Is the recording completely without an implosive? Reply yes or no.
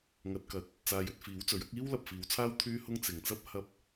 yes